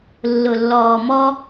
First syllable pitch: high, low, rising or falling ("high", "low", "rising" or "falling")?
low